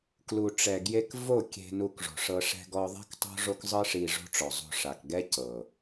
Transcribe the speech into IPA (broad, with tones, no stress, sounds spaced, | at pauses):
k l u˨ ʈ͡ʂ ɛ˨ ɡ j e˧ k v o˦˨ kʲ e̤˧ n u˧ k ʐ o̤˨ ʂ ɤ˧ ʂ ɛ̤˧ ɡ ɔ˧ ðˤ ɛ̤˦ k tˤ o̤˦ ʐ o˦ k zˤ ɯ˦ ʂ i˧ ʐ o̤˦ ʈ͡ʂ ɔ˨ zˤ o̤˧ ʂ a˨ k ɡ ɛ˦ c ɤ˨